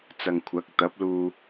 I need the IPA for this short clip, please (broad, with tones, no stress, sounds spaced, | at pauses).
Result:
t͡s ɐ˨ ŋ kʷʰ ɐ˨˥ k̚ t̪ ɐ˨˥ p̚ l uː˧